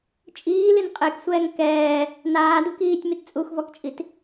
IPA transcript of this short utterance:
t͡ʃʼ iː l i n qʼ e k sʷ ɛː ŋ k ɛː | n aː d u k iː tʲ m i t t͡sʼ u x v ɔ k t͡ʃʼ i t

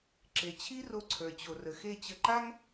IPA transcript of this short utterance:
ǁ e˨ t͡ɕʰ i˦ r o˧ ǀʰ ə˞˨ t͡ɕ o˨ r ə˨ x e˦˨ t͡ɕ ə˧ ǃ a˦ ŋ

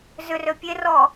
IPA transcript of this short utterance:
z ʏ r ø pʲ e r ɔ

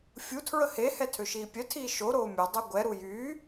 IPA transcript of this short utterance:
fʲ u tʰ ɹ ə h e h ɛ tʰ ø ʃ iː pʲ œ tʰ iː ʃ o ɾ oː mʲ œ dˤ œ ɡʷ ɛ ɾ u j yː

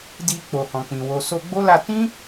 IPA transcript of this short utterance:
d i˧ k͡p o˨ h ɔ̃˨ k͡p ĩ˨ w o˨ s o˧ ɡ͡b o˦ l a˧ t ĩ˦

